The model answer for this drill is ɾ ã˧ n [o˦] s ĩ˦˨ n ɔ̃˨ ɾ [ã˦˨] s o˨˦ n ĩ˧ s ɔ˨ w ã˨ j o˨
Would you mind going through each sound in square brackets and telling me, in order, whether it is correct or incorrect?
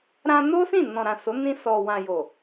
correct, incorrect

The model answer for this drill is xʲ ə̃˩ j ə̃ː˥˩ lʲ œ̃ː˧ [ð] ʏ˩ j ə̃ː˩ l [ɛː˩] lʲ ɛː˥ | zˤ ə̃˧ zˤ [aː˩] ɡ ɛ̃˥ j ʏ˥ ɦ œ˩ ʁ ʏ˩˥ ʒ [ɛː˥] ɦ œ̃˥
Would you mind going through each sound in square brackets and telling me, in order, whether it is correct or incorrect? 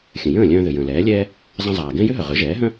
correct, incorrect, correct, incorrect

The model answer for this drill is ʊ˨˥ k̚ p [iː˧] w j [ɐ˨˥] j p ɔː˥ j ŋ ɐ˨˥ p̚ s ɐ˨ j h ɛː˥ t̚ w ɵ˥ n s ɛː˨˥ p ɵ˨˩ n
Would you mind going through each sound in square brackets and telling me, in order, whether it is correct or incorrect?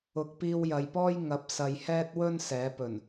correct, incorrect

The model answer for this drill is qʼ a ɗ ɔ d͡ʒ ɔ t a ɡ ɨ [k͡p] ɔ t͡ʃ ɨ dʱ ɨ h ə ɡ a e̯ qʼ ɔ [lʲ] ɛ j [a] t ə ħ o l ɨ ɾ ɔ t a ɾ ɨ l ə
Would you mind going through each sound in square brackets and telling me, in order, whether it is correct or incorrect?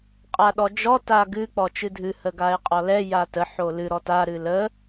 correct, incorrect, correct

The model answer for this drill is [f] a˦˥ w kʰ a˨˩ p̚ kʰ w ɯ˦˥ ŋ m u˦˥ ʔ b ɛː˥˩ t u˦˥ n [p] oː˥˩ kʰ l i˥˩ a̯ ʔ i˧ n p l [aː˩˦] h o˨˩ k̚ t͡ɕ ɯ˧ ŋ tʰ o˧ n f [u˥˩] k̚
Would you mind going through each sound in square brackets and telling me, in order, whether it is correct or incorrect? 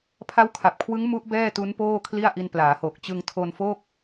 incorrect, correct, correct, incorrect

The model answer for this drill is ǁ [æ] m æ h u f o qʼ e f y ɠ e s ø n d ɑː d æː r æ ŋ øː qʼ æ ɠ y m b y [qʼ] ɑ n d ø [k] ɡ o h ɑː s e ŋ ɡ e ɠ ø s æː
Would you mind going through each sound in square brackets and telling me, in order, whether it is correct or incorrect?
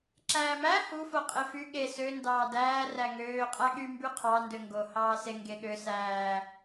incorrect, incorrect, incorrect

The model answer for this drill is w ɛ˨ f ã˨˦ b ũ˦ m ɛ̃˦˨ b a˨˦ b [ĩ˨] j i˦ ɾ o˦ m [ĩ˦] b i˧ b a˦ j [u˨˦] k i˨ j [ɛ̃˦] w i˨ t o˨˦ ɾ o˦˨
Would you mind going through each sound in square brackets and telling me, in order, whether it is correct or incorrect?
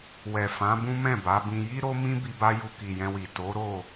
incorrect, correct, incorrect, incorrect

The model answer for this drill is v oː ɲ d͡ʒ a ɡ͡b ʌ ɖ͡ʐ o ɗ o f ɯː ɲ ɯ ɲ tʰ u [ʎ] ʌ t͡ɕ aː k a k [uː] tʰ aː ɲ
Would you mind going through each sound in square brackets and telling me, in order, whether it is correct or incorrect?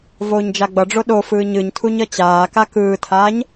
incorrect, incorrect

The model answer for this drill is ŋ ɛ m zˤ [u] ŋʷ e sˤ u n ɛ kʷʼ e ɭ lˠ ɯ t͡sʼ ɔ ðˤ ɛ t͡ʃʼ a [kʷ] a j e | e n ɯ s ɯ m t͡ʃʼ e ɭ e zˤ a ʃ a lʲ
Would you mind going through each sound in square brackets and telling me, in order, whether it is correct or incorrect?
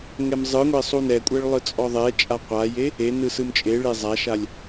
incorrect, incorrect

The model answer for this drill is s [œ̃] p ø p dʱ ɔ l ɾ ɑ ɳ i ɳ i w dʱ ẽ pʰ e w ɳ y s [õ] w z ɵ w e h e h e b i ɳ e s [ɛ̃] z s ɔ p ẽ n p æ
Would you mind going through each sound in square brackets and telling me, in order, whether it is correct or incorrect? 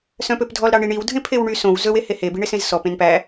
correct, correct, incorrect

